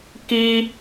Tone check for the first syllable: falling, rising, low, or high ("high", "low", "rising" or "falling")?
high